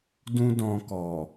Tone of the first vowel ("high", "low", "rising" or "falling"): high